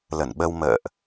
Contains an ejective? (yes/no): no